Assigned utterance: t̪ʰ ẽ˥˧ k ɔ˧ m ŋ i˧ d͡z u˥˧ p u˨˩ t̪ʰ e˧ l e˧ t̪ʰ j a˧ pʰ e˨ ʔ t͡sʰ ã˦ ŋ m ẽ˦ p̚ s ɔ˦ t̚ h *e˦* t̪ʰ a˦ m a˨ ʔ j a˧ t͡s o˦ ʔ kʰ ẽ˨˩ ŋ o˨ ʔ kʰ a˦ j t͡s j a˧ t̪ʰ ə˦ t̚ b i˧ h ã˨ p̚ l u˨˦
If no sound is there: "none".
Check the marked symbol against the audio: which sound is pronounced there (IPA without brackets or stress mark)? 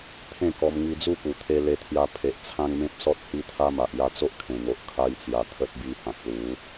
i˦